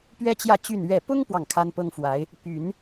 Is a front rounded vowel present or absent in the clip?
present